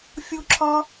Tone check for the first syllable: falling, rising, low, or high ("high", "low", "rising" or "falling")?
high